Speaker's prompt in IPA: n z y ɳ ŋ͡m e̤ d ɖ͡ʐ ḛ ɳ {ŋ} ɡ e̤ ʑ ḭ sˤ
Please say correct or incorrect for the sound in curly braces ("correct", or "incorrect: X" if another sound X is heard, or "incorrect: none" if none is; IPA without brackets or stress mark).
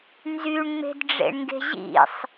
correct